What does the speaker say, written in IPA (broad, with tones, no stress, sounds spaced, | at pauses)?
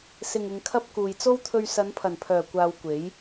s ɪ˨ ŋ ɪ˨ ŋ kʰ ɐ˧ p̚ k uː˨ j t͡s o˥ w t̪ʰ ɵ˧ ɥ s ɐ˨˧ n pʰ ɐ˨˩ n pʰ œː˨˩ kʷ aː˧ w kʷ e˨˥ j